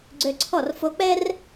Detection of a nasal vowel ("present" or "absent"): absent